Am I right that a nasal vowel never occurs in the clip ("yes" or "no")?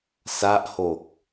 yes